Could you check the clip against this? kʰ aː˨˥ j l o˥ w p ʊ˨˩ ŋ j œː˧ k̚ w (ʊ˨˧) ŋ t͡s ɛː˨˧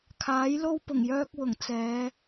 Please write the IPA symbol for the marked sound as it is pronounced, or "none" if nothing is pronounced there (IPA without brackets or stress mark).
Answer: ʊ˨˩